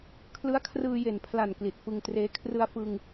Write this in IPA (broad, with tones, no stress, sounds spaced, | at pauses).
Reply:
kʰ l ɯ˦˥ a̯ kʰ r ɯː˧ j e˨˩ n pʰ l a˨˩ n k l i˨˩ t̚ f ɯ˧ ŋ t r eː˦˥ kʰ r ɯ˧ a̯ f ɯ˧ ŋ